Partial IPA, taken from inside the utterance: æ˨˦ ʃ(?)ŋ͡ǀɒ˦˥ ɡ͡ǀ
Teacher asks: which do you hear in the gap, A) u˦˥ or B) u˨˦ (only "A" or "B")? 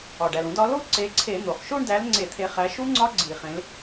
A